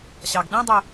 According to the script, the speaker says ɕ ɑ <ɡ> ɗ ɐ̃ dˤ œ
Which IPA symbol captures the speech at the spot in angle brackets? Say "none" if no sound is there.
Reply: ɡ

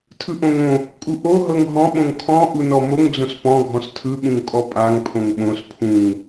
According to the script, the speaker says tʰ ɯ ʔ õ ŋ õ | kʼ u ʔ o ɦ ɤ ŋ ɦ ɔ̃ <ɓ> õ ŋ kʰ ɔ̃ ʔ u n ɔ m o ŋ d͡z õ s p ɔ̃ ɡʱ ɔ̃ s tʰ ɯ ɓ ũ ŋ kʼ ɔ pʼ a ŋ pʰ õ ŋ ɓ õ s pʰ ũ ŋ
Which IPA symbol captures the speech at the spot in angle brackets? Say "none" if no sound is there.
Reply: ɓ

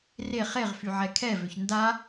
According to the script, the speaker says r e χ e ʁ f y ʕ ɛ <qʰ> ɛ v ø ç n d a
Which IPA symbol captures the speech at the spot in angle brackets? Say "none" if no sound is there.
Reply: kʰ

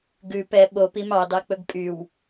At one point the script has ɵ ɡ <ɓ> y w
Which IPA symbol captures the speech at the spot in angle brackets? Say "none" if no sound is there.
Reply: pʼ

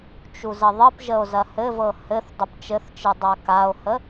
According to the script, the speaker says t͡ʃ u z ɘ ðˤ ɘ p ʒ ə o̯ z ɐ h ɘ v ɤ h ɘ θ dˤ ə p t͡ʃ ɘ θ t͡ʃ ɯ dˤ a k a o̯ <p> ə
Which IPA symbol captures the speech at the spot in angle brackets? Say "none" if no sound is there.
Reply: h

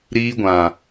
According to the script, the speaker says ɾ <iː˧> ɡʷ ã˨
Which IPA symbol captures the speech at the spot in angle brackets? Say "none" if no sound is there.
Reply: iː˧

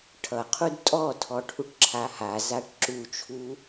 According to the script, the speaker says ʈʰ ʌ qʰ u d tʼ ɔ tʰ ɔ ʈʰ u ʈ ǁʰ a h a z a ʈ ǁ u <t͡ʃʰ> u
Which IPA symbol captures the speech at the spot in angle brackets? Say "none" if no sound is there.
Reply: t͡ʃʰ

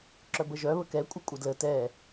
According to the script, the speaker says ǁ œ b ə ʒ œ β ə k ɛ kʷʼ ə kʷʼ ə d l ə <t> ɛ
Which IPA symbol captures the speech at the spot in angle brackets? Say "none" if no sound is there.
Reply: t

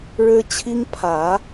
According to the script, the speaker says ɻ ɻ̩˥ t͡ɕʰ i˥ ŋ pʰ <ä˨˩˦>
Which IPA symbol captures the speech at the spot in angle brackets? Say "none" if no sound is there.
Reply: ä˨˩˦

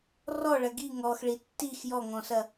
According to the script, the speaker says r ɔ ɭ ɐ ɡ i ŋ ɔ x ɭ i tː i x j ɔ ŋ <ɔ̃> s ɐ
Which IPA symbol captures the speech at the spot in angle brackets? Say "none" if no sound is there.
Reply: ɔ̃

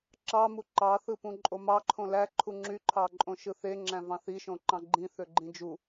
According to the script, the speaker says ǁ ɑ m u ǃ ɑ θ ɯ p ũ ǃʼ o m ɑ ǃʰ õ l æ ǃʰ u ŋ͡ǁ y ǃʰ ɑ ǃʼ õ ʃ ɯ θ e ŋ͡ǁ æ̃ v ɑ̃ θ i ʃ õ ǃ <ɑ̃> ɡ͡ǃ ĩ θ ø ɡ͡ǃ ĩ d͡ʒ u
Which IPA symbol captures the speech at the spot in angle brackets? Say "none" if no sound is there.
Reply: ɑ̃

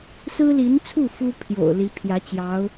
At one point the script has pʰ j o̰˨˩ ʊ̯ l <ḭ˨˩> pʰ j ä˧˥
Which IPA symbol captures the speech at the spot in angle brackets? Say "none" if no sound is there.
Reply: i˧˥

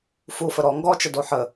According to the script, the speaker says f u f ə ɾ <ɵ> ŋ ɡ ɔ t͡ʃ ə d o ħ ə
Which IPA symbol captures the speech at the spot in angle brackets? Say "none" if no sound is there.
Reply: ɔ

